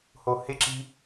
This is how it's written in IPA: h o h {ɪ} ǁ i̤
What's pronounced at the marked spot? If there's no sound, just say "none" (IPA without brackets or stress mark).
ɪ